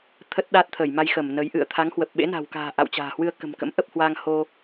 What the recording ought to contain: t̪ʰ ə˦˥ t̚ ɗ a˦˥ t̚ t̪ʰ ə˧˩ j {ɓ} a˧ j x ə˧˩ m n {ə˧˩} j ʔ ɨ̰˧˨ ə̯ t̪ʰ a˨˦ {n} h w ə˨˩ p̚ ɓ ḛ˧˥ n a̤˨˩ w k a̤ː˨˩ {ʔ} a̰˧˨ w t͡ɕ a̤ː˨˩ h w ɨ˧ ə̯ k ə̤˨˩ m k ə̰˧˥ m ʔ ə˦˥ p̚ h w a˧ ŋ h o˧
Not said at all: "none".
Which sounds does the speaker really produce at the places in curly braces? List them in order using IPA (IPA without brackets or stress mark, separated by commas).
m, ə˨˦, ŋ, ʔ